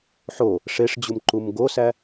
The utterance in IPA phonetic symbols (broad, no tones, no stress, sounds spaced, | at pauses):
ħ o | ʂ e ʂ d͡ʑ u m ǃ u m ɡ o s æ